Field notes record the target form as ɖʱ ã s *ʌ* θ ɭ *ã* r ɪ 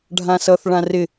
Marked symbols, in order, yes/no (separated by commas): yes, yes